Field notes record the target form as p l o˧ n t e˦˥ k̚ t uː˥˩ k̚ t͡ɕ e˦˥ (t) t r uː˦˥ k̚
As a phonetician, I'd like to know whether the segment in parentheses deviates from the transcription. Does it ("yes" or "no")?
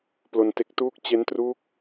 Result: yes